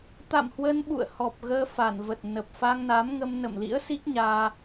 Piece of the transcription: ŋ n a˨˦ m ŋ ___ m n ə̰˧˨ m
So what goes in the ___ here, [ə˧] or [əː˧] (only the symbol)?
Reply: ə˧